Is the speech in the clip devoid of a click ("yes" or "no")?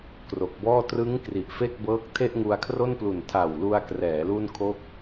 yes